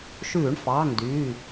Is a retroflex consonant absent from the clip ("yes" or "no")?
no